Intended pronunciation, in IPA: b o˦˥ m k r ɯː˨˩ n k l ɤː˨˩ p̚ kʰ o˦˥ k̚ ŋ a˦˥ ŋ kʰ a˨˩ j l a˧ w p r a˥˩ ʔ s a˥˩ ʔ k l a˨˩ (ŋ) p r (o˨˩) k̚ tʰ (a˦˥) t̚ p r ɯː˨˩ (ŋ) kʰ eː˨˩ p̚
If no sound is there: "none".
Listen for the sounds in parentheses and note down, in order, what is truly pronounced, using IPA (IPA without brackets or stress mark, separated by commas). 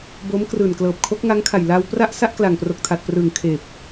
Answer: ŋ, o˨˩, a˨˩, ŋ